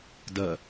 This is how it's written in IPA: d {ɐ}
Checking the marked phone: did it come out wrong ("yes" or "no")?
no